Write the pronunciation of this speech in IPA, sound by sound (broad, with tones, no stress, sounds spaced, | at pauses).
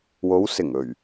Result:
w o˨˧ w s ɪ˨˩ ŋ ɵ˨˩ ɥ